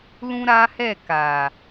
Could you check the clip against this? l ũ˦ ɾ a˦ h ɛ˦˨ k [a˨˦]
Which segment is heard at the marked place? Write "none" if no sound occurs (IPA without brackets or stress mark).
a˨